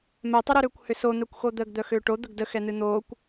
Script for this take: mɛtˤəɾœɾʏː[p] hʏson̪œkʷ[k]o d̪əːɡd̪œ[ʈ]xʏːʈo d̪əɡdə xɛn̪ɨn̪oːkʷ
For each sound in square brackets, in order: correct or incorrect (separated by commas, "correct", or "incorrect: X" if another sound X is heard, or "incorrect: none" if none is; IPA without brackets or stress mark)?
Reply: incorrect: kʷ, incorrect: x, incorrect: none